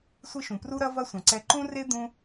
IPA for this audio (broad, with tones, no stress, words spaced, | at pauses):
sʷɨ˥ʃũ˩ pru˥ɾɐ˥ vɐ˥sʷɐ̃˩ǀɛ˧ ǃũ˥ re˥ d̪ũ˥